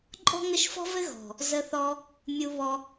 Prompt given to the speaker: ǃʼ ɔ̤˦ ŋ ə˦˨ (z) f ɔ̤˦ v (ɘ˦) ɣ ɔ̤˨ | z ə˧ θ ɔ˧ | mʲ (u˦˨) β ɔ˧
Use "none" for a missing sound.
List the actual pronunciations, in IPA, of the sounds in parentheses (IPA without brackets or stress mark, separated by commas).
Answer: ʃ, ɘ˦, u˧